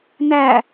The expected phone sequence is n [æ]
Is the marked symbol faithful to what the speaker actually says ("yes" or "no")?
yes